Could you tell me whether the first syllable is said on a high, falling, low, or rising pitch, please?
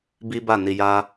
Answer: high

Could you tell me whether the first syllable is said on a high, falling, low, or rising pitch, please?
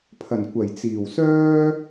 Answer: low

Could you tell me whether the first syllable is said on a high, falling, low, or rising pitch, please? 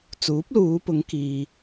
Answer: rising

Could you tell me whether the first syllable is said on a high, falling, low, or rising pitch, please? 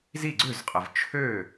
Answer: falling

